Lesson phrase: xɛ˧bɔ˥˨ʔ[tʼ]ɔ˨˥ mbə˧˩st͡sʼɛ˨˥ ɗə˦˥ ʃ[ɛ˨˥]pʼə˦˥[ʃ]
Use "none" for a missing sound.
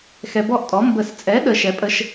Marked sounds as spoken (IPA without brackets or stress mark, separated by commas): tʼ, ɛ˨˥, ʃ